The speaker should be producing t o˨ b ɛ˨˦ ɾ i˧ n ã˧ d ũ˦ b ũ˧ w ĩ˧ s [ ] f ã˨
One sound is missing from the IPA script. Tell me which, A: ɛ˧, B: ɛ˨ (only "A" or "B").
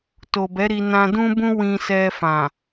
A